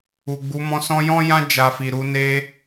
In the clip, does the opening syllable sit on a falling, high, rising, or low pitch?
low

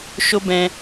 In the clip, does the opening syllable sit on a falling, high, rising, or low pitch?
high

